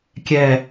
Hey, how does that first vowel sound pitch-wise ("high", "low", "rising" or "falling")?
falling